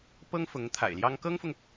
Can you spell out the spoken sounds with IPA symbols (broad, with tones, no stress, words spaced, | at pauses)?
pɤ˥ŋfʊ˧˥ŋ t̪ʰa̰˨˩ɪ̯ljɑ˥ŋ kɤ˥ŋfʊ˨ŋ